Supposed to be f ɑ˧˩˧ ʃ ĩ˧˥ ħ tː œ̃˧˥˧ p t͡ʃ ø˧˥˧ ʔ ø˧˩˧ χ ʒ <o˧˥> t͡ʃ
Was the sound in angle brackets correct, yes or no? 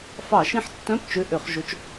yes